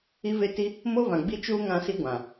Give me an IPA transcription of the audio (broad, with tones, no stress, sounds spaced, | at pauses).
i˦ v e˦ t i˦ | m o˦ v ã˨ ɡ͡b i˦ t͡ʃ uː˦ ŋ ã˦ s i˦ ɡʷ ã˨